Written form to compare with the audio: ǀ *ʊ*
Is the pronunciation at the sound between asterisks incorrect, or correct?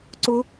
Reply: correct